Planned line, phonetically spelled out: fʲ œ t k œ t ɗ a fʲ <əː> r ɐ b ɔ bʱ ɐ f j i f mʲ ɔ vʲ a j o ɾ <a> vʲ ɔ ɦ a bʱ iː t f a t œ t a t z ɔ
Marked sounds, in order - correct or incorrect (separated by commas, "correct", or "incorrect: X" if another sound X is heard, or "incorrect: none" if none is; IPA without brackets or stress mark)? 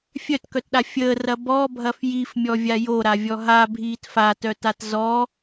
correct, correct